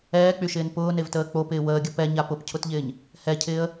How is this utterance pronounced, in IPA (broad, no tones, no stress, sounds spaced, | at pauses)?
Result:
ɛː k͡p y ʃ ɪː n p ʊː n e v t əː k͡p o p ɪː w əː ɡʲ ə p ɛ ɲ a p ʊ p cʰ ʊ t ʎ ɪː ɲ | h ɛ cʰ ɪː ə̯